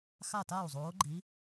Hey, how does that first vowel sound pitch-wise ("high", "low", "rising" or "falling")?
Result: falling